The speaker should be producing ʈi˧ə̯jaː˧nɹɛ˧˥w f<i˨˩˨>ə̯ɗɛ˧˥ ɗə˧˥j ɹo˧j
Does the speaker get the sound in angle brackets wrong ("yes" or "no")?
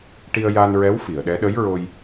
no